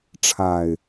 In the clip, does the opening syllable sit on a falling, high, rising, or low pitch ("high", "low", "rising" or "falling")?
low